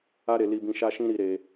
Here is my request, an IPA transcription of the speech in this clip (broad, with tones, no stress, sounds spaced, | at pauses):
a˦ ɾ e˧ l i˧ b ĩ˧ ʃ a˦ ʃ ĩ˦ ɾ i˧ ɾ e˧